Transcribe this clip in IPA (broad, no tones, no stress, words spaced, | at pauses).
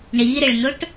ɳiɾɪɭnʊʈ